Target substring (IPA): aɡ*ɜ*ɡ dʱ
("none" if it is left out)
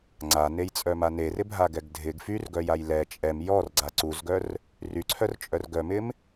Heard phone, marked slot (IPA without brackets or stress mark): ɛ